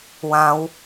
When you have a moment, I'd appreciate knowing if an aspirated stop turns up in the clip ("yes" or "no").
no